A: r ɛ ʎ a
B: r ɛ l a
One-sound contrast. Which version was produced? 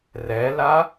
B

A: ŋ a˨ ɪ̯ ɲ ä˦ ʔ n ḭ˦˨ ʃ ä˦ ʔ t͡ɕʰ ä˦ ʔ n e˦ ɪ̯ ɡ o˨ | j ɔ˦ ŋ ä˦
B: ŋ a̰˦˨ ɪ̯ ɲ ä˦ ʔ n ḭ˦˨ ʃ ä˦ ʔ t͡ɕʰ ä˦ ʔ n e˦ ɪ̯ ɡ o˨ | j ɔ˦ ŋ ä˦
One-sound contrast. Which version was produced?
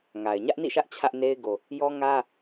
A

